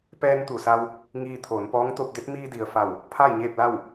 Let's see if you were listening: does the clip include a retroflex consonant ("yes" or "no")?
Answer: no